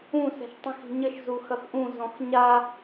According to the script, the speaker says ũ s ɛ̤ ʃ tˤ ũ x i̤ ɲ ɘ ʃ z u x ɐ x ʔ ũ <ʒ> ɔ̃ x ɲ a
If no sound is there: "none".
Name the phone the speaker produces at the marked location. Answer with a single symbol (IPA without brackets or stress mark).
z